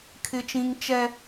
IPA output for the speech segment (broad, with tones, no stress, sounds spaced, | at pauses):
kʰ ɪ˦ t͡ʃ ĩ˦ ŋ t͡ʃ ɛ˦